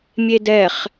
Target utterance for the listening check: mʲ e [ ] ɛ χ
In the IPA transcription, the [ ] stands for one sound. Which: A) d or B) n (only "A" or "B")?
A